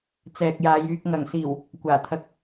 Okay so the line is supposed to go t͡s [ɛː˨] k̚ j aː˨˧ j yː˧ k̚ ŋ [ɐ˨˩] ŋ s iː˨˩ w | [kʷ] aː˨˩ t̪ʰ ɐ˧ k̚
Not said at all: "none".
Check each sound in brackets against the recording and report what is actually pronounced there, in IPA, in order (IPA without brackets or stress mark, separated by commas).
ɛː˨, ɐ˨˩, kʷ